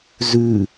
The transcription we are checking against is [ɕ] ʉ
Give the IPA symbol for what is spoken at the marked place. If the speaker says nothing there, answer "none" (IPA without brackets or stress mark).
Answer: z